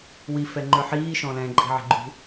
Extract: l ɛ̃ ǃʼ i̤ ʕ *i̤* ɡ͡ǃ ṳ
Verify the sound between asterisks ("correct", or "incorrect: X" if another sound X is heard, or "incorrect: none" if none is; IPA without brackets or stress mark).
correct